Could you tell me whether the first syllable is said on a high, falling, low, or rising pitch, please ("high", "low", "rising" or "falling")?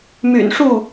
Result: low